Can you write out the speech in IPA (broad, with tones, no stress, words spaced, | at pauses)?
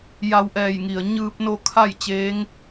ja˧wʔɛː˧˩jŋi˩ə̯ ɲɯː˧p̚no˧ kʰa˥˨j t͡ɕeː˧˥ŋ